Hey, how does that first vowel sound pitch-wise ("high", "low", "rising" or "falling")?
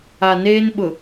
low